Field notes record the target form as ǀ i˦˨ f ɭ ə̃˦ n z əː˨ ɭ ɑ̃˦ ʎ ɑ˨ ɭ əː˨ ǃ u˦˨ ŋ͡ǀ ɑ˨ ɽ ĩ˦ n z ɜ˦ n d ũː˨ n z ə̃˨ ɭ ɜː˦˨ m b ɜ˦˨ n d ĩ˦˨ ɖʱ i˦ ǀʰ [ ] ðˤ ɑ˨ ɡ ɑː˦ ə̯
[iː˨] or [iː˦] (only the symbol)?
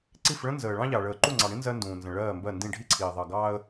iː˨